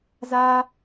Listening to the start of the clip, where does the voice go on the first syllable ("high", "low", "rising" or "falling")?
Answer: high